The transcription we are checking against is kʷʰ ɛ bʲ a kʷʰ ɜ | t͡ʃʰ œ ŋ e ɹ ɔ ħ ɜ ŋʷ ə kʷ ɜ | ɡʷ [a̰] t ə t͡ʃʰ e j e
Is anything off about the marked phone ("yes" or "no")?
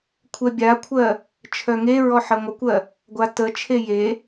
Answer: yes